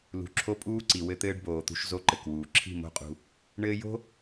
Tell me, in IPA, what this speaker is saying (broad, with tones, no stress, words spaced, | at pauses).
lṳ˨ǁʰo˦ pʼuː˦ǀi˨ wɘ˦t̪ɘː˦ɖboː˨t̪ṳ˦ʃ zo˦ǃɘ˨kwuː˨ ǁʰi̤˦˨mo̤˦ qʼṳ˦ | ɳɘː˦ jo̤˦